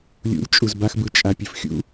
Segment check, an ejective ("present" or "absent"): present